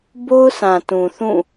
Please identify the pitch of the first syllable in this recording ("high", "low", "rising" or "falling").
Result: high